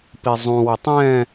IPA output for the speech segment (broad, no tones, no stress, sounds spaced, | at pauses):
p i zˤ ũ w ɪ tˤ ɛ̃